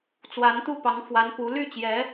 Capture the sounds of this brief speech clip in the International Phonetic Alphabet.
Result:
t͡s w a˧˥ n t̪ u˥˩ p ɑ˧˥ ŋ f w a˧˥ n p u˧˥ l y˥˩ t͡ɕ j ɛ˧˥

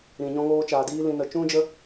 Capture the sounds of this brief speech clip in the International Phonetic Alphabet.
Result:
ɾ ĩ˨ ɲ ɔ̃˧ ŋ oː˧ t͡ʃ aː˨ d iː˧ l ĩ˨ n ə˨ t͡ʃ ũ˦ d͡ʒ ə˦

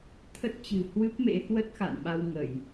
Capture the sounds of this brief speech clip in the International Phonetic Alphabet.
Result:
t̪ʰ ə˦˥ t̚ t͡ɕ ɨ̤˨˩ h w ɨ˦˥ p̚ m ḛ˧˥ h w ə˦˥ t̚ x a̰˧˨ n ɓ a˧ w ŋ ə˧˩˨ j

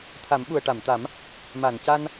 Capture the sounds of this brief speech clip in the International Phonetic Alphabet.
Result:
t̪ʰ a˨˩˦ m ɓ u˨˩ ə̯ ʈ a˨˩˨ m t̪ a˨˩˦ m | m a˨˩˨ n c a˧ n

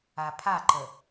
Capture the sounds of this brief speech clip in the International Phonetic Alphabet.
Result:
a pʰ a ǃ ə

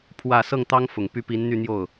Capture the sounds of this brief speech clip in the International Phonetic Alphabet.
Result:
pʰ w ä˨˩ s ɤ˥˩ ŋ t̪ ɑ˥ ŋ f ʊ˨˩ ŋ p y˥˩ p i˧˥ n n̪ y˥˧ n̪ j o˥˩ ʊ̯

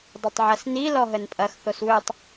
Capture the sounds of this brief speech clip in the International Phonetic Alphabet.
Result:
dˤ ɐ tˤ ʕ ɐ s n i l ɔ ɦ ə n pʼ ɐ x θ o s w ɵ tˤ

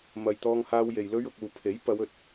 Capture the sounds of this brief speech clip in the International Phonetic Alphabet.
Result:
m ɐ˨ j t̪ ɔː˧ ŋ h aː˧ w j e˨ j l ɵ˧ ɥ ʊ˨ k̚ uː˨ pʰ e˨˥ j p ɐ˨˧ w ɵ˨ t̚

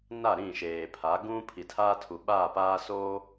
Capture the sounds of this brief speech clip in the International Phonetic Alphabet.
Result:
n a˦˨ ɾ ĩ˦˨ ʃ eː˨ pʰ a˨˦ ɡ ũ˦ pʰ i˨ tʰ aː˦ tʰ u˨ ɓ aː˦˨ p aː˦ s oː˦

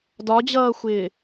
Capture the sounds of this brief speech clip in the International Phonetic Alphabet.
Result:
d ɒ d͡ʑ ʌː xʷ ɪː

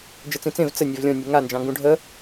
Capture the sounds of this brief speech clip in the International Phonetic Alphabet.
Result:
d͡ʒ ə t͡s ĩ t͡s ẽ v t͡s ə nʲ e v lʲ ɔ̃ nʲ e ŋ a n d͡ʒ ɑ̃ ŋ ɡ ũ ɖʱ ə

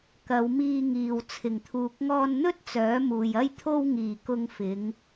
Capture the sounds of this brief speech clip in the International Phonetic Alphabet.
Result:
k ɐ˨˧ w m iː˧ ŋ iː˨ w t͡sʰ ɪ˨˩ ŋ t̪ʰ uː˨ k̚ ŋ ɔː˧ n n̪ ɵ˥ t̚ t͡s œː˨˥ m uː˨ j ɐ˥ j t̪ʰ o˧ w ŋ iː˨˩ k ʊ˧ ŋ f ɪ˨˧ ŋ

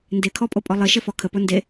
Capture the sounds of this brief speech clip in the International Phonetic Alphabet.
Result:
n d e kʰ ɔ pʼ o pʼ ɔ lˠ ɘ ʃ ɘ f ɔ kʰ ə p o n d e

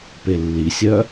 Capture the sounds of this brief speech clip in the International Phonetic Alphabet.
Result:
p e lː i sʲ œ

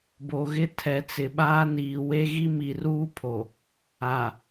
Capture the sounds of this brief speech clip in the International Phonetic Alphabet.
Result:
b o˨ ɣ ɪ˦ tʰ ɛ˨ t͡s ɪ˨ ɓ aː˦ n iː˨ w e˦ ɣ i˦ m i˨ r uː˦ pʰ o˨ | a˨

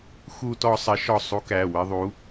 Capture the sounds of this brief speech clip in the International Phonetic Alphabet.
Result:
x u˥ t ɔ˥ sˤ ɪ˧˥ ʃ ɔ˦˨ sˤ u˧˥ k æ˩˧˩ w ɪ˥ ðˤ u˧˥

